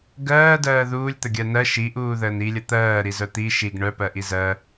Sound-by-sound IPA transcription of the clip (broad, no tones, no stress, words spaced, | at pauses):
ɡɜːdɜː ðuːlʲt̪əɡʲɜ nɜ ʃiʔuːðəːn ilʲə t̪ɜːɾizœ t̪i ʃiɡ ɳœpɜʔi zɜ